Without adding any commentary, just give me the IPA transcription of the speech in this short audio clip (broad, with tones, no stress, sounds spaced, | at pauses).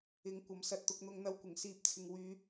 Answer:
ɪ˨˥ ŋ kʷ ɐ˨˥ m s ɐ˧ t̚ t̪ ʊ˧ k̚ n̪ ʊ˧ ŋ n̪ ɐ˧ w kʷ ɪ˨˩ ŋ s iː˨˥ p̚ t͡sʰ ɪ˨ ŋ w yː˨˧